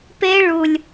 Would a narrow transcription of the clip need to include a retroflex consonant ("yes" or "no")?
yes